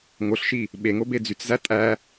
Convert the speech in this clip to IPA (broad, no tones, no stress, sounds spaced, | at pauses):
ŋ o ɬ ʃ i | ɓ e ŋ o b e d͡z y t͡s z æ tʼ æ